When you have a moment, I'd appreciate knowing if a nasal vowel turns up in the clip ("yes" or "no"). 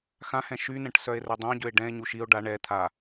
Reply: yes